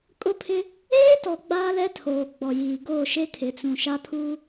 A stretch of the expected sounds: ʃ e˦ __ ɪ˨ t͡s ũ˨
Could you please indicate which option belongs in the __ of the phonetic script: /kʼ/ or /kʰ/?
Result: kʰ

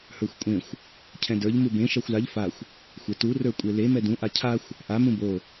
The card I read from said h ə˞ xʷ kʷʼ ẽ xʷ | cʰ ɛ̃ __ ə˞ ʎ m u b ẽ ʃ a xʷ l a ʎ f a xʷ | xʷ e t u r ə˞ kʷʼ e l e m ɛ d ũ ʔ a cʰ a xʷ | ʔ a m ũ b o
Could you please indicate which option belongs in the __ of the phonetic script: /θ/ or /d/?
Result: d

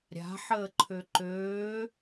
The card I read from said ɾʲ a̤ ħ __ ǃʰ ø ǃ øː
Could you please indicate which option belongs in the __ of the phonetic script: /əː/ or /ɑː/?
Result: əː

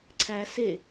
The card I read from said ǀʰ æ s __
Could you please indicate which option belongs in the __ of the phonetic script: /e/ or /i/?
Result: e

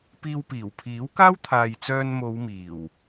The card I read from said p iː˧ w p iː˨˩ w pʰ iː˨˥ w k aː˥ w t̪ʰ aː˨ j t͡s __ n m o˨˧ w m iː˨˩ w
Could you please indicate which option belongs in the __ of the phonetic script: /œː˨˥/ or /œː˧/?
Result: œː˧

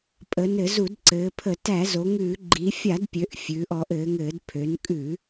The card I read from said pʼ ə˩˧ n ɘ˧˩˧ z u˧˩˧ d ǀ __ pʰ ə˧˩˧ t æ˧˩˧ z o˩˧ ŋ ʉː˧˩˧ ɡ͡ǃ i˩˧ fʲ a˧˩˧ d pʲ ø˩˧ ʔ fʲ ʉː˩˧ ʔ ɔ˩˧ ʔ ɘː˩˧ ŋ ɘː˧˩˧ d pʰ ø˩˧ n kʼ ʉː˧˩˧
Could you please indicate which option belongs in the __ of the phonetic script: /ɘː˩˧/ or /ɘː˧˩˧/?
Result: ɘː˩˧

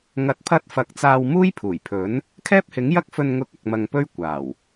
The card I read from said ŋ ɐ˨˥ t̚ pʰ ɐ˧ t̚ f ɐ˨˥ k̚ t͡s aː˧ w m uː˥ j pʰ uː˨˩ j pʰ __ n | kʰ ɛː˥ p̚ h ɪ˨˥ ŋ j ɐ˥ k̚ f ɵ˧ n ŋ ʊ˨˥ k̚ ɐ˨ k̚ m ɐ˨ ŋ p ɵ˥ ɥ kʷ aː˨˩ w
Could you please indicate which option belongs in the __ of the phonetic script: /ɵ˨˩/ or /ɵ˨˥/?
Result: ɵ˨˥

